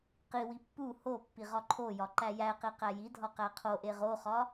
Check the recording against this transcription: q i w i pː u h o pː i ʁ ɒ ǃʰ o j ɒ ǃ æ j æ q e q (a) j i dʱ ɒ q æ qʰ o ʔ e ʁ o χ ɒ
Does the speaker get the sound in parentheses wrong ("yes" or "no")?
yes